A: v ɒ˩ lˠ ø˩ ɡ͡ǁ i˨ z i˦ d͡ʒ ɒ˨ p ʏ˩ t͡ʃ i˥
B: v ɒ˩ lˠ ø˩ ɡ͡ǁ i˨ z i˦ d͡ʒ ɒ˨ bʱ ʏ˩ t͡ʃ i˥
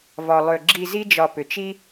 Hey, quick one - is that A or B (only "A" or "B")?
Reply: A